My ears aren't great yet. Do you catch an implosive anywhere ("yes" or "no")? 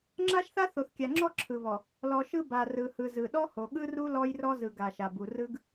yes